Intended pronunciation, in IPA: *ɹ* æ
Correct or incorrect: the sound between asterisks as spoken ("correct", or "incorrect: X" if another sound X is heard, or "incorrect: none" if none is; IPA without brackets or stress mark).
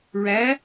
correct